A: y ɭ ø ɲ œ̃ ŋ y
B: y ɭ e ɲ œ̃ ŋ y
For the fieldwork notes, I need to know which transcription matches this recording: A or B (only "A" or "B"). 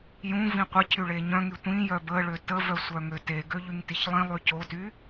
B